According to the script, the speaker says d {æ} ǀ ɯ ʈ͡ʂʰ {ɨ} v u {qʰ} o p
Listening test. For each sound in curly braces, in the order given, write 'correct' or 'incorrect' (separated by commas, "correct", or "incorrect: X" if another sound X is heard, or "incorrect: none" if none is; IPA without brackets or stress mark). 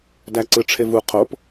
correct, incorrect: e, correct